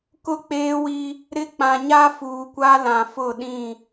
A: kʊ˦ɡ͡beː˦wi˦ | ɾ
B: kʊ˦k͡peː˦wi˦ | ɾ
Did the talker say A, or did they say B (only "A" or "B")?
B